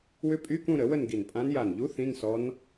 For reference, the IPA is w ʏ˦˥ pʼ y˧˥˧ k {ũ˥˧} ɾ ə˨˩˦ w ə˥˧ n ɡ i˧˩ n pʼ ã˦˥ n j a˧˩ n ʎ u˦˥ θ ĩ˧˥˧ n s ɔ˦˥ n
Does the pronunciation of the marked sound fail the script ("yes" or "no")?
no